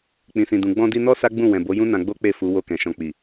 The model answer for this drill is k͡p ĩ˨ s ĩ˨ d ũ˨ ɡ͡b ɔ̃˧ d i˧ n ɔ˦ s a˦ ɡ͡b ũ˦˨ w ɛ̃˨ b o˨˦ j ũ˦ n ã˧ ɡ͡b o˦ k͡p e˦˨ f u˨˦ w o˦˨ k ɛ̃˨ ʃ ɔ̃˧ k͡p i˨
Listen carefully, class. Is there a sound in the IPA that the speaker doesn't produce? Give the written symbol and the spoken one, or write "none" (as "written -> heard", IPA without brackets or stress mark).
none